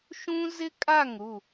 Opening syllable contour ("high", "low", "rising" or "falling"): high